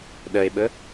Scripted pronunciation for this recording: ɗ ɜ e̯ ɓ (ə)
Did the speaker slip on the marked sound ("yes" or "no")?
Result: no